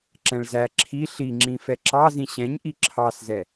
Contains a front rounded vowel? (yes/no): no